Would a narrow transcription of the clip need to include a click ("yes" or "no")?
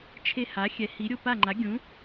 yes